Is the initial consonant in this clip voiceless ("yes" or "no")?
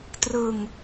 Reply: yes